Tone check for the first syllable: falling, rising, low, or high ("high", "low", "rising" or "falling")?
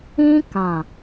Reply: high